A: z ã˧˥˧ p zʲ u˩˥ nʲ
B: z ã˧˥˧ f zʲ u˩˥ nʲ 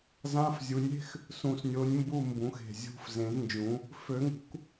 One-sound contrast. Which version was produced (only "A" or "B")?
B